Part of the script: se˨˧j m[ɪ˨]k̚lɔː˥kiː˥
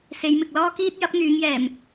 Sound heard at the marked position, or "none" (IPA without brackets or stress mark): ɪ˨